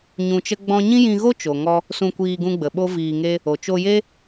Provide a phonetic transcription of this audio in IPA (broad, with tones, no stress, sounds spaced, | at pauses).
ɲ ũ˧ t͡ʃ ə˦ ɡ͡b ɔ̃˦ ɲ ĩ˦ j ĩ˧ ɣ o˦ t͡ʃ o˨ ŋ ɔ˧ | s ũ˧ kʷ iː˧ ɡ ũ˧ ɡ͡b ə˨ ɓ o˦ v iː˧ ŋ e˦ | o˨ t͡ʃ o˧ j e˦